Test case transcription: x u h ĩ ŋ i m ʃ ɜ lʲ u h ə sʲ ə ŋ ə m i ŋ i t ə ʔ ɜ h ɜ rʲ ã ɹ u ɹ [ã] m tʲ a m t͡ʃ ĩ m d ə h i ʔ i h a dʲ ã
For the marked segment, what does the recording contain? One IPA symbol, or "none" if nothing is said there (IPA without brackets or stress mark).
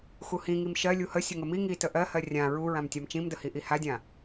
ã